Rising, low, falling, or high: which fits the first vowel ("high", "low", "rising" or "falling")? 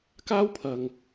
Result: high